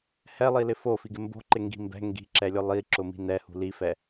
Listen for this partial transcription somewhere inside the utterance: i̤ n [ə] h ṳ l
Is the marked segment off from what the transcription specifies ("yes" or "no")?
yes